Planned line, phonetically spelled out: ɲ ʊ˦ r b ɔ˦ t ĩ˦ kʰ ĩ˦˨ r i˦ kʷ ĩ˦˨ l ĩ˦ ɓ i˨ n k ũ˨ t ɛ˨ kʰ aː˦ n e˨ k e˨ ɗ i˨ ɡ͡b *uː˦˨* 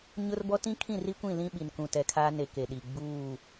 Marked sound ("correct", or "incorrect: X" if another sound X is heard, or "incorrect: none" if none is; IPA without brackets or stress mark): correct